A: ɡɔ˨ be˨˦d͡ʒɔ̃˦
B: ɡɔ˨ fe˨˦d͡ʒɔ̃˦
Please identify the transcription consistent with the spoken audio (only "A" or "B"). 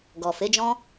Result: B